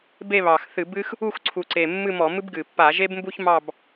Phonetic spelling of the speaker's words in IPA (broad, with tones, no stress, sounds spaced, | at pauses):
b e˥˧ β ɑ˨˩ x θ ɨ˧˩˧ b ɨ˥ x | u˥˧ x ǀʰ u˨˩ ǀ e˨˩ mː ɨ˥˧ m ɔ˧˩˧ m ɨ˥ b ɡ ɨ˨˩ pː a˧˩˧ ʒ e˥ b m b u˥ ç m ɑ˥˧ b